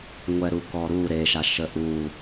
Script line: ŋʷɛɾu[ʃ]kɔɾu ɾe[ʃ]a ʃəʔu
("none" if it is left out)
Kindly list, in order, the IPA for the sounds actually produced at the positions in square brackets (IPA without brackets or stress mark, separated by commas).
none, ʃ